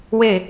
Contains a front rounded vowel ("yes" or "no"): no